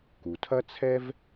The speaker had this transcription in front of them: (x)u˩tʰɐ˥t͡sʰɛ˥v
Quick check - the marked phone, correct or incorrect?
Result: incorrect